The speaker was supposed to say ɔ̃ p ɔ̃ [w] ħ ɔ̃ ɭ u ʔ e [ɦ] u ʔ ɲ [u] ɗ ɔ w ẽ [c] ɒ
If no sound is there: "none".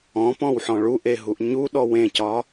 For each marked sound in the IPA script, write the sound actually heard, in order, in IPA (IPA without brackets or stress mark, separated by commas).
w, ɦ, u, c